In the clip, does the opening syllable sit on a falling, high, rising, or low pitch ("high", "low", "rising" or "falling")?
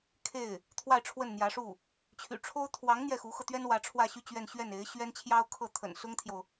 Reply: falling